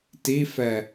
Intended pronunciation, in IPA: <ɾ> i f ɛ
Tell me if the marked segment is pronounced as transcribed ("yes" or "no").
no